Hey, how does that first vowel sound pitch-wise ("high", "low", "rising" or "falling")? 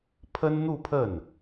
high